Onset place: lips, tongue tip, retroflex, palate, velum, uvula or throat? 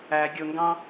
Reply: velum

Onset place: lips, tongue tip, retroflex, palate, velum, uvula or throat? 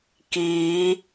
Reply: velum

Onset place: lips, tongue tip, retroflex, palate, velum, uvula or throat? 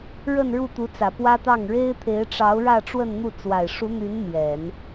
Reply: retroflex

